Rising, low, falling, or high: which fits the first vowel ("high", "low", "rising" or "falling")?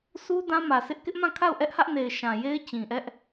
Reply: high